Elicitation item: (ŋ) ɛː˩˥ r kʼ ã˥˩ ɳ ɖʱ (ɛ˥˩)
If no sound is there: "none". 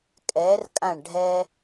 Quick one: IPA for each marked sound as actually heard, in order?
kʼ, ɛ˥

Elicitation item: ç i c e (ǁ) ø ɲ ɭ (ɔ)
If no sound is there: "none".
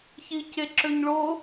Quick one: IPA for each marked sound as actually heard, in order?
ǁ, o

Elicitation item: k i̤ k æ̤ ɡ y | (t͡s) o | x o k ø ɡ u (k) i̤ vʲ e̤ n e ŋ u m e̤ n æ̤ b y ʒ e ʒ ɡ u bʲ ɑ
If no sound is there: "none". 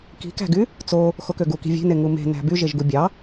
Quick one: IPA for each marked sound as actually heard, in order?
t͡s, k

